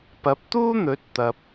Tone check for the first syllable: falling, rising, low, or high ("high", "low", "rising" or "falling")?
rising